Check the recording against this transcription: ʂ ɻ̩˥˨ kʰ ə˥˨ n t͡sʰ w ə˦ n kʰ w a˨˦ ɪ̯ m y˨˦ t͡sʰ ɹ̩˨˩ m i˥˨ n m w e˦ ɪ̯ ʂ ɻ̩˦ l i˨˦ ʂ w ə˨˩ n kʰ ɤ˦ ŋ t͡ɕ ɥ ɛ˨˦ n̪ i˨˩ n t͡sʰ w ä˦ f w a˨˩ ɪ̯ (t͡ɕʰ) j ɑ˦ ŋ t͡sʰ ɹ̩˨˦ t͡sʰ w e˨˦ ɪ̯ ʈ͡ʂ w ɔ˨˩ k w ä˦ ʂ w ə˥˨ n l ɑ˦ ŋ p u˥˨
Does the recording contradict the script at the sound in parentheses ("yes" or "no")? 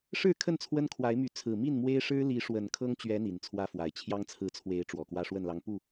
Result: no